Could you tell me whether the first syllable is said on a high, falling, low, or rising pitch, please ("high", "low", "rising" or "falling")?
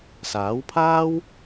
rising